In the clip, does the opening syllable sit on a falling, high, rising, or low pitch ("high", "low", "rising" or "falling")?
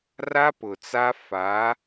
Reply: high